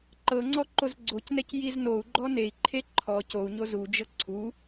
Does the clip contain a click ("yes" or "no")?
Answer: yes